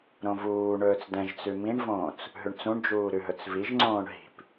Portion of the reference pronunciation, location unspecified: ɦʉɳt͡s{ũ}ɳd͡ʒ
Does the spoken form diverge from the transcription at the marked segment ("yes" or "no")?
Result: no